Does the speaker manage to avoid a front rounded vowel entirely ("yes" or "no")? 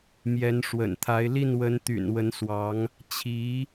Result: no